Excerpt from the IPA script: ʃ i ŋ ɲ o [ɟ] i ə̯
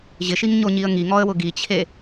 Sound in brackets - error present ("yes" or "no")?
yes